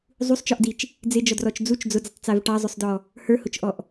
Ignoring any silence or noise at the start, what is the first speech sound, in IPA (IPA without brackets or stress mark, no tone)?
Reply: zˤ